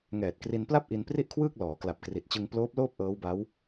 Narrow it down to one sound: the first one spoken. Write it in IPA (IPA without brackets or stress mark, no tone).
ŋ